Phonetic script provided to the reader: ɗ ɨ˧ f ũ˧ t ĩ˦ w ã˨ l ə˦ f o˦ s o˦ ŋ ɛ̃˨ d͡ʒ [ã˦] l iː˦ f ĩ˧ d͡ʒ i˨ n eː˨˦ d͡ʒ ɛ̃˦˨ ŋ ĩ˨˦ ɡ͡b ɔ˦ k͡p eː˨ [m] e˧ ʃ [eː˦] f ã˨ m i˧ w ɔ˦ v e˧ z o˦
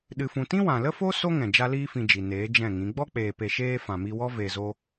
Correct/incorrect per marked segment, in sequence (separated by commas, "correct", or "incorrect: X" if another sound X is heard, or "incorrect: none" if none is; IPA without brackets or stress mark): incorrect: a˦, incorrect: p, correct